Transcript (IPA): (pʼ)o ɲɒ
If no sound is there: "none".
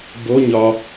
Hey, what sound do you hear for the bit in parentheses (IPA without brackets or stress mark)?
b